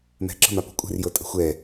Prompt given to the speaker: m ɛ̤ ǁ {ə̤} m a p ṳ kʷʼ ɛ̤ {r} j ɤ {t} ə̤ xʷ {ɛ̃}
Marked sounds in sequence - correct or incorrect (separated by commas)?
correct, correct, incorrect, incorrect